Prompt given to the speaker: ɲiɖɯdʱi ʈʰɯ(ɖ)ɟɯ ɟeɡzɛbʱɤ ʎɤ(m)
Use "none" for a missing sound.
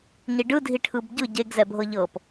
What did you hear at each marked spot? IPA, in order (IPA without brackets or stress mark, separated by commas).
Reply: b, p